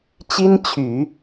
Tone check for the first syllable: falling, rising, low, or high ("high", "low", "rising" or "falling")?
high